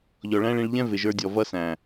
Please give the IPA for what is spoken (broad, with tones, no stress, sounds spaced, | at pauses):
ʎ ɔ˨ ɭ æ̃˦ ɭ ĩ˧ ɭ ʎ ɛ̃˦ v ɪ˨ ʒ ə˞˧ dʲ ɔ˨ v ʌ˦ s æ̃˨